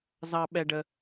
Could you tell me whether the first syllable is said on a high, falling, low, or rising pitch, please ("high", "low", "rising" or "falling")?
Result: high